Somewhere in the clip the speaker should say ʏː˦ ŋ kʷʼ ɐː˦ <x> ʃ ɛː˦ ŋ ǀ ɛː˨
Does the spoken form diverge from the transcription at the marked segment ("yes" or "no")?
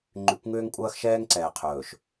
no